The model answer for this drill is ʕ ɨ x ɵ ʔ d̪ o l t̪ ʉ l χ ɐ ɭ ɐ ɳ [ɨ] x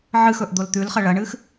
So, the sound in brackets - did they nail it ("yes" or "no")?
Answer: yes